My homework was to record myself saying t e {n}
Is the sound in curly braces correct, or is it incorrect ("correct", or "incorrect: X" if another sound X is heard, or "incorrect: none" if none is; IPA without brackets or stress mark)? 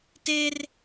incorrect: r